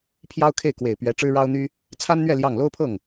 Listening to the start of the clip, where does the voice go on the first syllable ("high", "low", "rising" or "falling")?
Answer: high